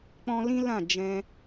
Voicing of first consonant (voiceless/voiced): voiceless